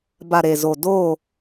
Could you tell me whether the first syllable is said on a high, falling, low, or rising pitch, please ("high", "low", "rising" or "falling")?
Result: low